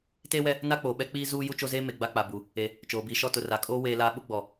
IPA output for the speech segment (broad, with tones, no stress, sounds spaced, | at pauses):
t eː˦ w ɛ˦ | n a˦ k͡p oː˨ ɓ ɛ˦ k͡p iː˦ z uː˦ j u˦ t͡ʃ o˦ z eː˦ m e˨ ɡ͡b a˦ k͡p a˨ b u˨ | e˨ | t͡ʃ oː˨ b iː˨ ʃ ɔ˦ t ʊ˨ r a˨ kʼ oː˦ w eː˦ l aː˦ ɓ ʊ˦ ɡ͡b ɔ˨